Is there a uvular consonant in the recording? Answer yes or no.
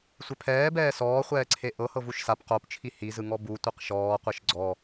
yes